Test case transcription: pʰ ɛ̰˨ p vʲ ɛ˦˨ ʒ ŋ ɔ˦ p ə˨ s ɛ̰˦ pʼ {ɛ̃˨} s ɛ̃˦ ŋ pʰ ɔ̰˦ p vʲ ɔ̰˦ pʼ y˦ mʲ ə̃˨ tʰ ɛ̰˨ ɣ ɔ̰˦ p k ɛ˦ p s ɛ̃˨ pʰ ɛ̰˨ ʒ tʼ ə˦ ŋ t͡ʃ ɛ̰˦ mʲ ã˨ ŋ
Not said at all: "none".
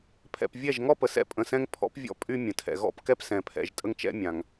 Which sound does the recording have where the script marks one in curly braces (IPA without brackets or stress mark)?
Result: ə̃˨